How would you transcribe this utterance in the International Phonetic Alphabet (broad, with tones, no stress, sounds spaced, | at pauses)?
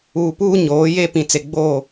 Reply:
uː˨ p uː˦ ɲ oː˨˦ j e˦ p ĩ˨ t͡s e˨ ɡ͡b oː˦˨